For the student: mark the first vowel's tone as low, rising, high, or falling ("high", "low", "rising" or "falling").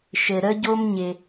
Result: low